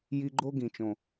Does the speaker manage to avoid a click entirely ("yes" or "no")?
no